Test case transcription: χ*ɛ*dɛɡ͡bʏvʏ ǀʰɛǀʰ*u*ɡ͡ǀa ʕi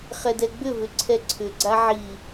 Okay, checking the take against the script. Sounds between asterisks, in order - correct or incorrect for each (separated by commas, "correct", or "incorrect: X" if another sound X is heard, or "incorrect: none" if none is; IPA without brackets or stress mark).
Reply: correct, incorrect: ʏ